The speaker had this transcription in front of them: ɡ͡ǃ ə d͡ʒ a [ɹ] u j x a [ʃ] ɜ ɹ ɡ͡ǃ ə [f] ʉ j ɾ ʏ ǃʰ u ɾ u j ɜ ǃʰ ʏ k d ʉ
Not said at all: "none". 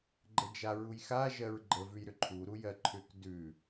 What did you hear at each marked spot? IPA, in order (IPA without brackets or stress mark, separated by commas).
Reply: ɹ, ʒ, v